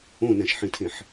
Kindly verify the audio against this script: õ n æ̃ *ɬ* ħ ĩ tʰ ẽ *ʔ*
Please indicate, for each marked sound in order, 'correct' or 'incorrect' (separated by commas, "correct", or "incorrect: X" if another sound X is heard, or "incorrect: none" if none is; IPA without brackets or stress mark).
incorrect: ʃ, incorrect: ħ